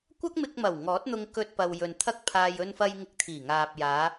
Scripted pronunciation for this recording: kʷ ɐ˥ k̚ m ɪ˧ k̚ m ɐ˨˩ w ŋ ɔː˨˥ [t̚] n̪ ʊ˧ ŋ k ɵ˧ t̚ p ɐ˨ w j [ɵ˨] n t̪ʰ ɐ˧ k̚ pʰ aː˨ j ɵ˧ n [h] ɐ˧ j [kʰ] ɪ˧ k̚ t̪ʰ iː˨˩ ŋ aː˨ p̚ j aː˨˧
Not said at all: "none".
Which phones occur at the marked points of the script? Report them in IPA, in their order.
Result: t̚, ɵ˨, f, ŋ

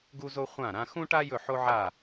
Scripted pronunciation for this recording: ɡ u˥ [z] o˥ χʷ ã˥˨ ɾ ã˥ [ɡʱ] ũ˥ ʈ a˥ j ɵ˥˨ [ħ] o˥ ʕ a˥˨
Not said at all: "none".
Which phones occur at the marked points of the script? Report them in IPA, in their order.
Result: z, x, ħ

